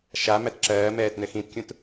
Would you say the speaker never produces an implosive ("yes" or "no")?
yes